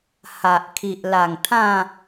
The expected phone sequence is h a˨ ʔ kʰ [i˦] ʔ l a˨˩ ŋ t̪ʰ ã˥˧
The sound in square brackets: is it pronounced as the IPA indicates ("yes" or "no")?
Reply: no